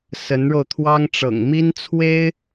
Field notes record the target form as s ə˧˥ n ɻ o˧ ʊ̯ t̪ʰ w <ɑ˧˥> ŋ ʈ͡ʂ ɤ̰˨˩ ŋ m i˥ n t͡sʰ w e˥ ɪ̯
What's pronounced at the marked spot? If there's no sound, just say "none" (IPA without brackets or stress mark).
ɑ˥